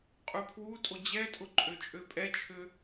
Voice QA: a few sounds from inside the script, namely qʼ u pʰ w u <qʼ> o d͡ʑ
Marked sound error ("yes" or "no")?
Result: yes